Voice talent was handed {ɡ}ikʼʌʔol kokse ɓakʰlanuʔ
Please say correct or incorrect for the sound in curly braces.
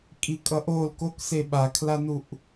incorrect